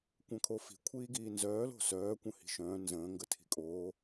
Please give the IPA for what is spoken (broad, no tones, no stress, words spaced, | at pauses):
kʷœ̃kʰofi̤ kʷʰiːɡiːnzœːlo̤ sœːkʷə̃ hi̤ʃœ̃ː nzə̃ːŋɡə tʰi̤kʼoː